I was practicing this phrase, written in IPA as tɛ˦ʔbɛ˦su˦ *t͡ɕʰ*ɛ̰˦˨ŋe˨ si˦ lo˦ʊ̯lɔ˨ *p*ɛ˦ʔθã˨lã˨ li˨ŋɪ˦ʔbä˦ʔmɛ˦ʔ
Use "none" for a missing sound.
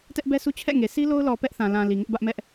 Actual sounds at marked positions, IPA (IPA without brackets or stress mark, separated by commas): t͡ɕʰ, p